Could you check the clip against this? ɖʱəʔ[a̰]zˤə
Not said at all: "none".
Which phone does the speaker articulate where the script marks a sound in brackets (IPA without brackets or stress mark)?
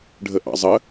ɑ̰